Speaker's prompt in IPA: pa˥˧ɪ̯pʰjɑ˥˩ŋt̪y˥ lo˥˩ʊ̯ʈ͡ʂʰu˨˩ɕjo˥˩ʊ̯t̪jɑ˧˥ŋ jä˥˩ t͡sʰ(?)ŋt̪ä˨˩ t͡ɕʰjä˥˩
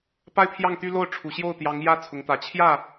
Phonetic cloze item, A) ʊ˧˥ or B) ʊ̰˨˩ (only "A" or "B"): A